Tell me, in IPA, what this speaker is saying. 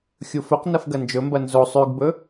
xʲ u f ɵ q n ɐ f ɡ ɐ n d͡ʒ ɵ m b ɐ n z o sˤ ʉ ɡ b ɵ

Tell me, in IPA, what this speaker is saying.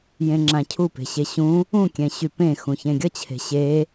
j ẽ ŋ͡ǁ ã cʰ u p e̤ ɕ e ɕ ũ | ũ kʲ ɛ̃ ɕ y p ẽ x ũ ç ẽ ɡʲ ʌ t͡ɕʰ e̤ ɕ e

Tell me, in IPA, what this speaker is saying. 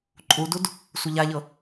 ǃʼ u d u d | sʷ ɘ ʎ a ʎ ɤ

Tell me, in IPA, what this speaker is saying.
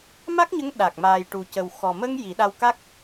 m a˦˥ k̚ ɲ ə˧˥ ŋ ɗ aː˨˩ k̚ m aː˨˩ j ʈ u˨˩ c ə˨˩ w x ɔ˨˩ m ə˧ ŋ j i˨˩˦ ɗ a˧ w k a˦˥ k̚

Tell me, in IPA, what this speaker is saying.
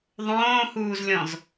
ðˤ õː h uː z lʲ ɔ̃ z

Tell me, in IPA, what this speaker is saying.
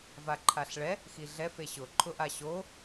v a ǃʰ a ɬ ɭ ɛ | x i ɮ ɛ f e ɕ ʊ ǃʰ ʊ ʔ a ɕ o

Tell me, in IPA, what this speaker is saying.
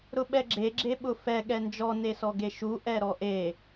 ɾ ʊ ɓ ɛ ɡ͡ǁ e ɡ͡ǁ e ɓ ʊ f ɛ ɠ ɛ n d͡ʒ ɔ n e s ɔ ɡ e ʃ u ʔ ɛ ɾ ɔ ʔ e

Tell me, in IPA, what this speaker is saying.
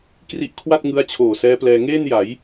k r i˦˥ ʔ kʰ w a˥˩ t̚ ŋ ɯ˦˥ a̯ t͡ɕʰ oː˨˩ s ɛː˦˥ p l ɛː˧ ŋ eː˥˩ n j a˩˦ j

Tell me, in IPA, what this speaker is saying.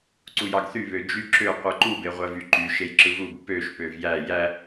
ǀ u j ɑ ɡ θ y β ø d͡ʒ y ǁ ø qʷ ɯ ǃ u b e ʁʷ æ v y ǃ y ʃ e j ǁ ɯ v u b p ø ʃ p ø v j æ j æ

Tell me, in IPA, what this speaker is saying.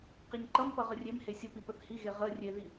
q i ɲ ǃ ʌ m p ʌ ʁ ə rʲ e m h e sʲ ə p i p ə θ h i ɣ e ʁ ə rʲ e ð i

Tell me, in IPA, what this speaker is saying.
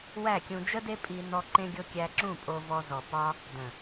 w æ˦˨ kʲ ũ˧ d͡ʒ ə˦ d e˦ pʼ i˧ n ɔ˧ ǃ ẽ˧ ɡʲ o˧ kʲ æ˧ ǁ ũ˦˨ pʼ o˧ v ɔ˧ z ɔ˨ p ɒ˧ | d ə̃˨

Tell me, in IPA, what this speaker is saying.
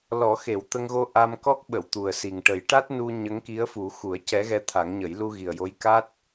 l ɔ˨˩˦ x e˨˩˦ w t̪ ə˧ ŋ ɣ o˧ ʔ a˧ m k ɔ˦˥ k̚ ɓ ə˨˩˨ w t̪ u˨˩ ə̯ s i˨˩ ŋ ʈ ə˨˩˦ j ʈ a˦˥ t̚ n u˧ ɲ ə˧˥ ŋ k i˧˥ ə̯ f u˨˩˦ x u˨˩˦ ə̯ c ɛ˧˥ ɣ ɛ˧˥ t̪ʰ a˨˩˦ ŋ ɲ ə˨˩˦ j l u˧ ɣ i˨˩ ə̯ j o˧˥ j k a˦˥ t̚

